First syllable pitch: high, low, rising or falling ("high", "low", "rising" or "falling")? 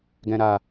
low